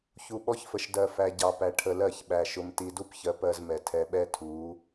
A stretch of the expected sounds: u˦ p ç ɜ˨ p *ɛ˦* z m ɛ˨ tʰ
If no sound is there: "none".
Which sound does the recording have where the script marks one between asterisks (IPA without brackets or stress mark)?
ɜ˦